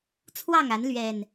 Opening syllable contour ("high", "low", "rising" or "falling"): falling